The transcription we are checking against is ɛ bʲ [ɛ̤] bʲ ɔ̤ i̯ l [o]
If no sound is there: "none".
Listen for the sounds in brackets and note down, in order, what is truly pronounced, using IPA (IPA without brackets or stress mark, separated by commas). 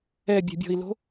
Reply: ɛ̤, o̤